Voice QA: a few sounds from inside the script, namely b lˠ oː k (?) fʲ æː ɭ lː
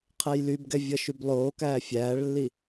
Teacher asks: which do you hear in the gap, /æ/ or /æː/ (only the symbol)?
æː